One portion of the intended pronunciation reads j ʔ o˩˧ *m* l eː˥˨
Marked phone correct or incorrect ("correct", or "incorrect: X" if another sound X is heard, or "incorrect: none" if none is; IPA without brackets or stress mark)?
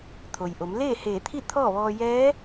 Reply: correct